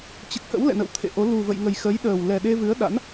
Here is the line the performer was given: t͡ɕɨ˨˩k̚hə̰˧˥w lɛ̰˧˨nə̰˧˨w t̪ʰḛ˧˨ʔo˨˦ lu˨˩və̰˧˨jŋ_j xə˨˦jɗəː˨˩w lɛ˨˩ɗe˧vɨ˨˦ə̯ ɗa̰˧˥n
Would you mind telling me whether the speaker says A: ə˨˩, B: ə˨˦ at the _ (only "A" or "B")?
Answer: A